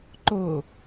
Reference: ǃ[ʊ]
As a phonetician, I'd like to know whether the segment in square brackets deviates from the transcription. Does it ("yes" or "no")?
no